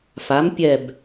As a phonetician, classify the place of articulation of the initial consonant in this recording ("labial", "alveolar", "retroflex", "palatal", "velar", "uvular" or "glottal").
labial